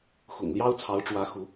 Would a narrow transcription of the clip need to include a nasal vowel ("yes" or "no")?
no